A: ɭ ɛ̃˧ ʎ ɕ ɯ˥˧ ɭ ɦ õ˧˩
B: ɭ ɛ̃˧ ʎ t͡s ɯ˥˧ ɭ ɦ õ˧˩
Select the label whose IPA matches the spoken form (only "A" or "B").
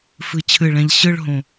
A